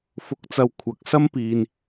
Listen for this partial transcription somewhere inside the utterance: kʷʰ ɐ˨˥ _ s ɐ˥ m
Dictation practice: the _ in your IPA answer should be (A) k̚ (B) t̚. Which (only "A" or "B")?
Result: A